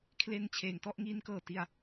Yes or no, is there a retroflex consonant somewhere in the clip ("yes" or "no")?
no